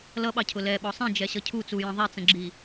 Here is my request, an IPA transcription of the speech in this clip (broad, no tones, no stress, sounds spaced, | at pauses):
l ʌ ɓ ɑ cʰ ʊ l ɛ ɓ ɔ sˤ ĩ d͡ʒ ɛ ɕ ʌ cʰ u t͡s u j ə̃ ðˤ ɛ t͡s ə̃ ɡ͡ǁ i